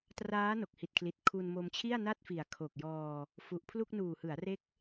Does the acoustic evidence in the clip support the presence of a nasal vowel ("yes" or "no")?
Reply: no